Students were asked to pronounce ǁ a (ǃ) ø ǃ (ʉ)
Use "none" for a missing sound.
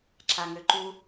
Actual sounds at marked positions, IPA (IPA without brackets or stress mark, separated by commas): ŋ, u